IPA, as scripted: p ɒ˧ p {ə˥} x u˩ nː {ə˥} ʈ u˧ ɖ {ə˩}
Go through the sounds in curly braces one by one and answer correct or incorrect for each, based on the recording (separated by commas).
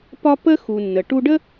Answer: correct, incorrect, incorrect